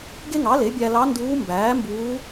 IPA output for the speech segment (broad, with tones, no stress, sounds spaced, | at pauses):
ɡ e˥ ŋ ɑ˩˥ l e˩˥ bʲ æ˧ l ɑ˧˥ n d uː˧˥ m b æː˩˥ m b uː˧˥